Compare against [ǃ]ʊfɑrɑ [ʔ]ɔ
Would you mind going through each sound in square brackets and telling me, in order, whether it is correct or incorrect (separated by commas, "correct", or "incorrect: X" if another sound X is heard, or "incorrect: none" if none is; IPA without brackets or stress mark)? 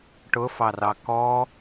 incorrect: ʈ, incorrect: k